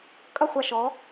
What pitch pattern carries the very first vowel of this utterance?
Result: falling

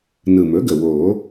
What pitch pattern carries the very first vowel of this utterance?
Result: low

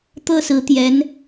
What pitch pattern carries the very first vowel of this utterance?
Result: falling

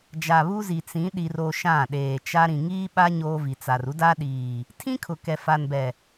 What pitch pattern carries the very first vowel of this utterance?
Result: low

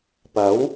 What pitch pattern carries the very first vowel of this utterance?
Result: rising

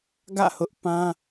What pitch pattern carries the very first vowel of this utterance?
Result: falling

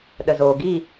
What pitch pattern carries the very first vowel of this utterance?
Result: low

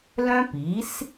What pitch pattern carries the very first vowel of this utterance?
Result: high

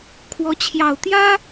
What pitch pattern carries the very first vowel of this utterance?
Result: rising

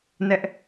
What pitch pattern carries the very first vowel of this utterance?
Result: high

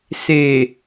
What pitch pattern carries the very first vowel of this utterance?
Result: low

